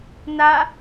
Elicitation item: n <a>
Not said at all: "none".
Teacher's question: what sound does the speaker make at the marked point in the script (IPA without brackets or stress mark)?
a